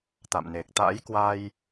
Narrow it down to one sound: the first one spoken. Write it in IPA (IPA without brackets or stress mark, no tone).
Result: t̪